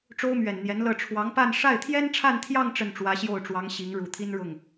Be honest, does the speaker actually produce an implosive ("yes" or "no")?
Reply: no